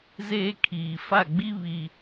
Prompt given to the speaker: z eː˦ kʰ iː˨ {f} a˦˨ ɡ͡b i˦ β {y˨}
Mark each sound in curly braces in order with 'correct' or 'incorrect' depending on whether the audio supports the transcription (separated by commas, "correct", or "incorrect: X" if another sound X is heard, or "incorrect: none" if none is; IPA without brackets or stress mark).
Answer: correct, incorrect: i˨